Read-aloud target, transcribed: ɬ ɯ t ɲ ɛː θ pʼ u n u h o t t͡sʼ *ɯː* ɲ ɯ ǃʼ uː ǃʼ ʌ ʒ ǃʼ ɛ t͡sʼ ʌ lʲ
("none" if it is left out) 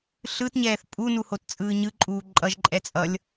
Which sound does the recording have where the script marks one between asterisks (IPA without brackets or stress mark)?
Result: ɯː